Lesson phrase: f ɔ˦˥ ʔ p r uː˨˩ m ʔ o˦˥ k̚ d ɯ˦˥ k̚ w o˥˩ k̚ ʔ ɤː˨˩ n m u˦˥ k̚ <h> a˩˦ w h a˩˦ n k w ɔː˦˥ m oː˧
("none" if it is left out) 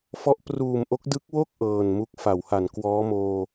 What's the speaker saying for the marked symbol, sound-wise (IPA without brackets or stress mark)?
f